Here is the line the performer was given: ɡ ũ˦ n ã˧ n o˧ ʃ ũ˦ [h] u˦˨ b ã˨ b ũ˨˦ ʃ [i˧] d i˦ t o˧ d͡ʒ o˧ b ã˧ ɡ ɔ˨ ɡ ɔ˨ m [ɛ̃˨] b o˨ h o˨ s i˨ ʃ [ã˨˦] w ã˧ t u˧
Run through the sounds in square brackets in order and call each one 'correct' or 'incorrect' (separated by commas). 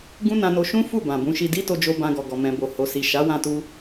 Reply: incorrect, correct, correct, incorrect